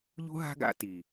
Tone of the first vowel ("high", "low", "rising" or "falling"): high